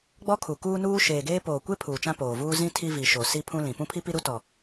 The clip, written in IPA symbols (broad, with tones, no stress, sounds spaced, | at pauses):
ɡ͡b ɔ˦ kʰ u˨ k uː˦ n uː˦ ʃ eː˨ ɡ eː˦ p oː˨ kʷ e˦ pʰ uː˨ t͡ʃ ã˦ p oː˨ v uː˦ z ĩ˦ tʰ i˦ v i˨ ʃ o˨ s i˦ pʰ ũ˦ l ĩ˨ p ũ˦ pʰ i˦ p i˦ ɾ u˦ t ɔ˨